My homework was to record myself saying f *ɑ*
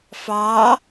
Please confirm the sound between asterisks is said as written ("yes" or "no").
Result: yes